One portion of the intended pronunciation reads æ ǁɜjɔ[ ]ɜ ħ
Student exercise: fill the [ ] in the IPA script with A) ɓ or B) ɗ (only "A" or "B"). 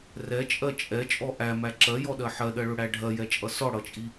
B